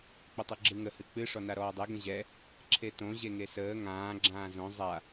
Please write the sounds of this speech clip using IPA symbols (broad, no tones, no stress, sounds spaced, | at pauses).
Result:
k͡p ə tˤ ɯ ɡ͡ǁ ɯ ŋ ə h ɨ k͡p ɨ ʂ ɔ n a ɾ ɔː dˤ e ɡ ə̃ ʑ ɛ | ǁʰ e t õ ʑ e ŋ e s əː ŋ ãː ɡ͡ǁ ãː z õ zˤ a